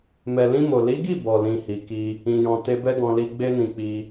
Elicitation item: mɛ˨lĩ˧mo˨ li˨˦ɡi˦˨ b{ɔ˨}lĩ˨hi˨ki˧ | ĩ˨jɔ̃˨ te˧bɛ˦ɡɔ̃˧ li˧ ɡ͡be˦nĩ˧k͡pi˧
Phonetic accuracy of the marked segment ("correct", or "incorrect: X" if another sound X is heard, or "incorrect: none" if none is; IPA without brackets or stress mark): correct